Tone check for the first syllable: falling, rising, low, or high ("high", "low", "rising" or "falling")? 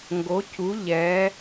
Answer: rising